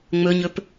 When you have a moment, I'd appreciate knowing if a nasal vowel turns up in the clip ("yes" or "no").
no